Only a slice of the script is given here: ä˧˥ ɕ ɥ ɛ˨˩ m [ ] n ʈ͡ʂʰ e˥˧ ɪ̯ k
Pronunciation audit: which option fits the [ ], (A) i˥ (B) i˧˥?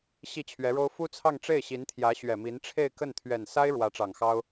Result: B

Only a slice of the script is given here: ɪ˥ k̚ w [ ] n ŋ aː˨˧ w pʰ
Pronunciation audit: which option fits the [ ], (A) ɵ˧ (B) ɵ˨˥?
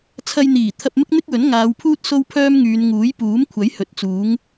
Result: B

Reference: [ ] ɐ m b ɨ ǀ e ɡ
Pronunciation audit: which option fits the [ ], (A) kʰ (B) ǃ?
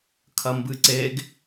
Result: A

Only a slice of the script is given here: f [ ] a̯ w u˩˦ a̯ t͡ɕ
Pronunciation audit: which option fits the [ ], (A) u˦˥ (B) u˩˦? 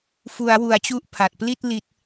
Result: B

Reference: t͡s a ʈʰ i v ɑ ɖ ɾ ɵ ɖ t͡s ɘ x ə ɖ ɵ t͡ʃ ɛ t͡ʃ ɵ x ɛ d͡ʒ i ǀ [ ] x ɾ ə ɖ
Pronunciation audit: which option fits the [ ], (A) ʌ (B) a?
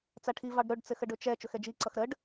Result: A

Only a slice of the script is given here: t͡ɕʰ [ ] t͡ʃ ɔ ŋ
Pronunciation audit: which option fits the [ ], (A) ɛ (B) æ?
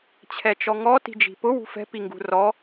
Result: A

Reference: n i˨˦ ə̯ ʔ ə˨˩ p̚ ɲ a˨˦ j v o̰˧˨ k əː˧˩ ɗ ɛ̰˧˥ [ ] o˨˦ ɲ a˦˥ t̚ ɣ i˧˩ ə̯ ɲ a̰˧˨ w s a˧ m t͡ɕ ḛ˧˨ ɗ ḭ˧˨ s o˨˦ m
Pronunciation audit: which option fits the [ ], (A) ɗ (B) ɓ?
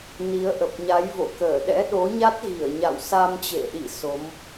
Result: A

